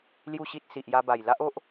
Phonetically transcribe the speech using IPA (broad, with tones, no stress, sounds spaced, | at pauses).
l j u˥˧ ɕ i˦ t̚ s i˨ ʔ j a˧ b a˨˩ j l a˦ ʔ o˦ ʔ